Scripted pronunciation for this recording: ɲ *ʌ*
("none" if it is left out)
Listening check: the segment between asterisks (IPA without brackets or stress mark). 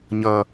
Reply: ʌ